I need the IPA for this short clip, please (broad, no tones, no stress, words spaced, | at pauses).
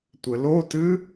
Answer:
tʷɘlotɨ